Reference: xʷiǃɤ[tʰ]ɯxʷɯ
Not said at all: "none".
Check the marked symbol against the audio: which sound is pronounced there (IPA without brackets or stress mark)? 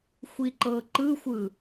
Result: ǃ